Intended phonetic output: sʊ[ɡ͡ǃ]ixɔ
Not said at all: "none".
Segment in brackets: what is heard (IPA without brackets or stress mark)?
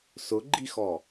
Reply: ɡ͡ǃ